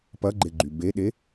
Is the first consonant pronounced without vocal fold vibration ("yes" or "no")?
yes